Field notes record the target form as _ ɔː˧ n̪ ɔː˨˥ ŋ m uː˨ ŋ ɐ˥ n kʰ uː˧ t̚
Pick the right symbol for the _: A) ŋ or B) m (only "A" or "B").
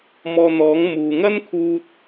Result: B